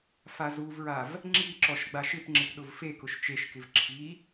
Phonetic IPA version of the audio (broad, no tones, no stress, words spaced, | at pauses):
fazuvɹav | ŋ͡ǁi ǁɔʃɡ͡baʃɪpŋ͡ǁɪp ɗʊvfekʊʃ t͡ʃeʃkɪv ǁʰi